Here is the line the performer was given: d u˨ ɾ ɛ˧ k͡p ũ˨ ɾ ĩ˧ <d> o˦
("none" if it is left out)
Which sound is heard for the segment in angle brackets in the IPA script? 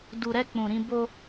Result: b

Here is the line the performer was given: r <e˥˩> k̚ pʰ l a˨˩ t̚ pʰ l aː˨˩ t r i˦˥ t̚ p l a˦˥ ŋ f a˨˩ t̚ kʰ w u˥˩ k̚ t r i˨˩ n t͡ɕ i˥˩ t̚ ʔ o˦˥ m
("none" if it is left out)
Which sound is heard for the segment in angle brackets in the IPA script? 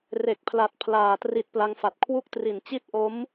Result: e˨˩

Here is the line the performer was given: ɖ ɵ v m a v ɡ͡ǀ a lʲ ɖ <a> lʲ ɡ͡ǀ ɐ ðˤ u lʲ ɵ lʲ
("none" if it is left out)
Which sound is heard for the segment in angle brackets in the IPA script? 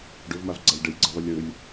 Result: ɐ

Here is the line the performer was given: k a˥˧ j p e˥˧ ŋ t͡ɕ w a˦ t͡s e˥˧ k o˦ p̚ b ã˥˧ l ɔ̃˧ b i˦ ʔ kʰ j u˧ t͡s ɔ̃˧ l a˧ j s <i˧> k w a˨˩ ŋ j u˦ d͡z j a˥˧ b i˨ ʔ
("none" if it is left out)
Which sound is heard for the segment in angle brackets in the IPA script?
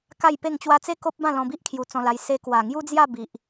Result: e˧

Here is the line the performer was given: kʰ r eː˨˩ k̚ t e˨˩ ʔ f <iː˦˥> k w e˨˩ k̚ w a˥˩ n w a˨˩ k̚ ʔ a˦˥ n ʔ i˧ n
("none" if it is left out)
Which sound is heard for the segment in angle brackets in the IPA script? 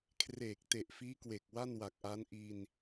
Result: iː˦˥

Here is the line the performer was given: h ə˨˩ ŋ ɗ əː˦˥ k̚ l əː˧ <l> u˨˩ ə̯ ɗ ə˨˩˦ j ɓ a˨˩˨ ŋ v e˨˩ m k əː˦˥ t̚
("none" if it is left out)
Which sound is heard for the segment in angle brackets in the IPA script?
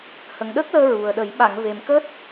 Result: ɹ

